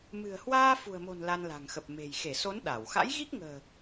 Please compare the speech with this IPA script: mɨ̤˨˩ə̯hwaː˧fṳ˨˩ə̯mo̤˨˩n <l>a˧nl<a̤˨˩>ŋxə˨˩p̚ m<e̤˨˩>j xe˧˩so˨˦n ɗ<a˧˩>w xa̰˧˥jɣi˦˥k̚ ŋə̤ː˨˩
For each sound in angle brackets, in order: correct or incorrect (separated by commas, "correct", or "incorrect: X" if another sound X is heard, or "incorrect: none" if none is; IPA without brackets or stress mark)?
correct, correct, correct, correct